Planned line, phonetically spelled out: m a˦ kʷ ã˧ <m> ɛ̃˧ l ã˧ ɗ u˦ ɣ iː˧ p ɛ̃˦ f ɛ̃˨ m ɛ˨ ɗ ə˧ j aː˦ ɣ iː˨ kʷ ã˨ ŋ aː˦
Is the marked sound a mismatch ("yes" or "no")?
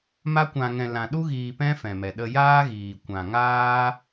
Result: yes